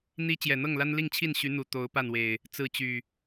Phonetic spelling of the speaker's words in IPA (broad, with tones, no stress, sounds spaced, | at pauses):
n̪ i˦ t͡ɕ j ɛ˨˩ n̪ ɤ˥˨ ŋ l a˦ n l i˥˨ ŋ t͡ɕʰ i˥˨ n ɕ y˨˦ n̪ u˨˩ t̪ o˨˦ ʊ̯ p a˥˨ n w e˨˩ ɪ̯ | t͡s ɹ̩˥˨ t͡ɕ y˨˩